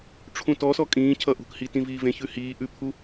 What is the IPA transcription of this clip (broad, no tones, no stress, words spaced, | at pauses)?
ʈ͡ʂʰũtɔsɔ kʼĩːcʰʌ ʔṳkhi tĩviːvẽçʉ hiː ʔʉpʰu